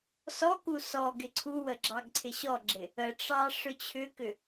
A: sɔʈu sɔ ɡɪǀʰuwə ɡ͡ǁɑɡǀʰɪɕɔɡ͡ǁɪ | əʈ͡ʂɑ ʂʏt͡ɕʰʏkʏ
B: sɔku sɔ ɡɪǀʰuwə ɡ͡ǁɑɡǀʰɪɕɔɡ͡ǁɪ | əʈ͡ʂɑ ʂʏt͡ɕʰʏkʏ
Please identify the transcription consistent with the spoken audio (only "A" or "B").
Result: B